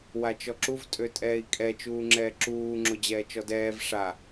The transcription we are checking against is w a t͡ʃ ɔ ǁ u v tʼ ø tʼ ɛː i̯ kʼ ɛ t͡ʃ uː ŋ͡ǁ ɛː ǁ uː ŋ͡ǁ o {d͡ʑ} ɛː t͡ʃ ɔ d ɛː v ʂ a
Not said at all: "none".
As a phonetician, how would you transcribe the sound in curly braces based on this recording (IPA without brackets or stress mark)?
d͡ʑ